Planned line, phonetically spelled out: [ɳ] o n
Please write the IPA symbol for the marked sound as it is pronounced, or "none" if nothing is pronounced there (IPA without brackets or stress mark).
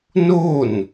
n